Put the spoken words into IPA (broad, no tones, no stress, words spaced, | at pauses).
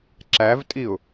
ǁævtʼiʊ̯